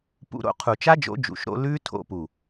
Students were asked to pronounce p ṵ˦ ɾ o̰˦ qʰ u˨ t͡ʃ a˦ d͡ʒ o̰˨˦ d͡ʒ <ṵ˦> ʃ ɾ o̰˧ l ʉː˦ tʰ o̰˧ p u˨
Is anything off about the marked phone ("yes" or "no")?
yes